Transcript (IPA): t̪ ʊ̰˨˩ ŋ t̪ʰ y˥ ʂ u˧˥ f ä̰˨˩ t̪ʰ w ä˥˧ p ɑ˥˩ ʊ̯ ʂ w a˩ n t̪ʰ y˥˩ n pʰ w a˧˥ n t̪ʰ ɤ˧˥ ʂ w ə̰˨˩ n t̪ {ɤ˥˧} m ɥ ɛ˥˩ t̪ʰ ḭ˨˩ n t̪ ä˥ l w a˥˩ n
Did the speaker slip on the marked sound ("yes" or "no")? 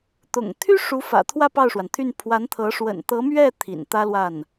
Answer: yes